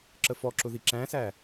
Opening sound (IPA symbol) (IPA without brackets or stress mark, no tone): ǁ